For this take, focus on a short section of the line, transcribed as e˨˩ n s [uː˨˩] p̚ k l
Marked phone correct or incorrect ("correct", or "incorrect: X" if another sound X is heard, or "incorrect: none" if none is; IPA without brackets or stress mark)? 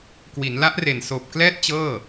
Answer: incorrect: oː˨˩